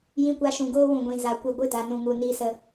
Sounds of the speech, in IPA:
j ĩ˧ kʷ a˧ ʃ ũ˨ ɡ oː˦ w ũ˨ ɡʷ ĩ˨ z a˨ kʷ ɨ˨ ɡʷ ɨ˧ d a˨ n ũ˨ ŋ u˨ n iː˧ s ə˧

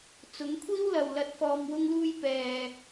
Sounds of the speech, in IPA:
t͡s ʊ˨˥ ŋ kʷʰ iː˥ w l ɐ˨ w l ɐ˨ t̚ f ɔː˨ m w ʊ˧ ŋ l uː˧ j p ɛː˨

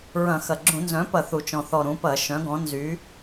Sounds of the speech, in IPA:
ɹ ɐ̃˧˩˧ x ɐ˨˩ ɡ͡ǁ ũ˧˩˧ n z œ̃˩˥ p ɐ˧˩˧ θ u˨˩ t͡ʃ ɔ̃˨˩ θ ɔ˨˩ ɾ ũ˩˥ p ɐ˧˩˧ ʃ œ̃˩˥ ɡ ɔ̃˩˥ n z y˩˥

